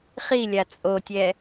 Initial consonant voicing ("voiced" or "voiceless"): voiceless